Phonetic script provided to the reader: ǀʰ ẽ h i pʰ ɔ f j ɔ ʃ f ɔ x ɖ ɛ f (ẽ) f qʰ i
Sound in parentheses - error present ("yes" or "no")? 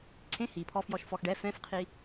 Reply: yes